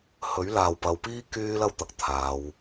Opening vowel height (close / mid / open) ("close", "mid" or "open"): mid